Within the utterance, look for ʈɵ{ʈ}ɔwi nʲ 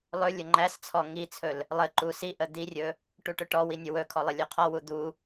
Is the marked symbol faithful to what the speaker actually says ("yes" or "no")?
yes